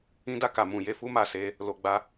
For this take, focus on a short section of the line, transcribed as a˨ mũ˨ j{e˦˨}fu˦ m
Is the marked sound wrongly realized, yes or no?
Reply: yes